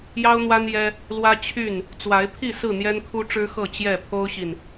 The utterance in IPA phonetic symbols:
j ɑ˦ ʊ̯ n̪ w a˦ n j ɛ˦ | l w ä˦ t͡ɕʰ y˥˨ n | t͡s w a˨˦ ɪ̯ pʰ i˥˨ s ɹ̩˥˨ n̪ j ɛ˦ n kʰ u˦ ʈ͡ʂ ɻ̩˦ x ɤ˥˨ t͡ɕ j ɛ˥˨ pʰ o˦ ʊ̯ ɕ i˨ n

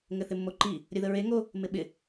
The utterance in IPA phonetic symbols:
ŋ ɘ θ ɪ mː o ǃ i | ɾʲ ə ð ə ɹ e ŋ o | m ɪ ɓ ɪ

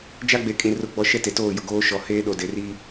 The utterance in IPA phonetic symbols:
d͡ʒ a˦ ɡ͡b e˨˦ kʼ ĩ˨ r ʊ˦ ɡ͡b ɔ˦ ʃ ɛ˦ t e˨ t oː˦˨ j ʊ˨ ɡ oː˦ ʃ ɔ˨ h eː˦ ɗ o˨ d e˨ r i˦

